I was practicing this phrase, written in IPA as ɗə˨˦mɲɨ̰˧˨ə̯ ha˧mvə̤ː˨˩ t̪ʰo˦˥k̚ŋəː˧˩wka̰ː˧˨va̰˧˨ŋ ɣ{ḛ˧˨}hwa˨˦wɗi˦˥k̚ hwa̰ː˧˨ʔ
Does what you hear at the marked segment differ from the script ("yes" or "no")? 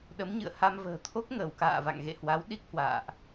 no